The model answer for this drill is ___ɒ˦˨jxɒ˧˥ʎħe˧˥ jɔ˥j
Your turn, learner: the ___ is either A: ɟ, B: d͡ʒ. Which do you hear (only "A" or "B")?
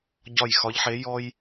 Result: A